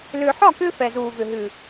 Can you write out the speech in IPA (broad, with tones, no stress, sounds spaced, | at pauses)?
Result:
l ʏː˨ ħ ɒ˦˨ k ʏː˧ f ɛ˨ z uː˨ v ʏ˨ ɦ ʉ˨